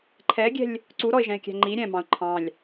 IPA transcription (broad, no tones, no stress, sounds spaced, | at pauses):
ǃʰ ɛ ɡʲ ɛ̤ lʲ | ǀ u ɾ ɔ ɪ̯ ʒ ɛ̃ ɪ̯ kʲ æ̤ ŋ͡ǃ i ɾʲ ɛ̃ m ɑ̃ ʊ̯ ǃʰ ɑ̃ lʲ